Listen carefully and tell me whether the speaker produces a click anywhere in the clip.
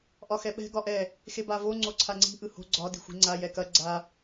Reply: yes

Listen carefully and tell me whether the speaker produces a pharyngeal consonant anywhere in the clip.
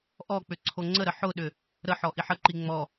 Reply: yes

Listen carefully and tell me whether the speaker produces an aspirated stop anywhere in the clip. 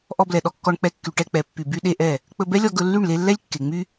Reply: no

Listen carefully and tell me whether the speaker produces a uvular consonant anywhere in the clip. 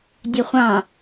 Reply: yes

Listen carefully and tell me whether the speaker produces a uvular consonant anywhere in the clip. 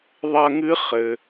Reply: yes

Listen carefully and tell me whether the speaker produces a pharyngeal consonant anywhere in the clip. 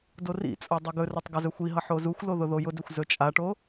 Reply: yes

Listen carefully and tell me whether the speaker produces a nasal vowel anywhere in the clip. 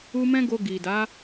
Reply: yes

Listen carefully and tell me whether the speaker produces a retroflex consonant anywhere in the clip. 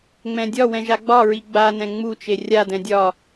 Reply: no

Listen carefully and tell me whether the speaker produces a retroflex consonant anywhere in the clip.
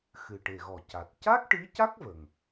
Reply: yes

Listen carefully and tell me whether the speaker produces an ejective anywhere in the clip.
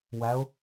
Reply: no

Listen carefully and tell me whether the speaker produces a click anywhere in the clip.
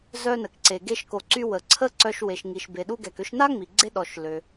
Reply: yes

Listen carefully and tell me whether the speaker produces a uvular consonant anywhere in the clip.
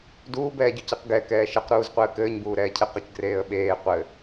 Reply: yes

